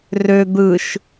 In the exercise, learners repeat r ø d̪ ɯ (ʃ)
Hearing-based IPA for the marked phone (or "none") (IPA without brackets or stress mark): ʃ